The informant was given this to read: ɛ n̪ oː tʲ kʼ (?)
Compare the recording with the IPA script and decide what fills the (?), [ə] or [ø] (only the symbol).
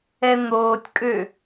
ø